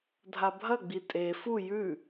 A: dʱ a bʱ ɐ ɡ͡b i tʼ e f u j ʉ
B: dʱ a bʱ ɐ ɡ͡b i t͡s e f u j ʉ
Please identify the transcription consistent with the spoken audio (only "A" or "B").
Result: A